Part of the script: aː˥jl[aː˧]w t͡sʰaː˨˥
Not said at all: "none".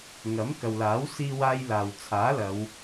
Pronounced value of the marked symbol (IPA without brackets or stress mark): aː˨